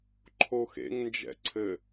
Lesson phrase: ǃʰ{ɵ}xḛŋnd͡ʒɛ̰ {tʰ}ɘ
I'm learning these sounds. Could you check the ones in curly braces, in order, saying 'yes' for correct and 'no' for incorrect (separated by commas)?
no, no